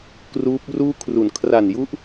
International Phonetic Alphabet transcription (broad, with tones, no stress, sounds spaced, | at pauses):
k r uː˦˥ p̚ r uː˥˩ kʰ r u˨˩ n kʰ r a˨˩ n j u˦˥ ʔ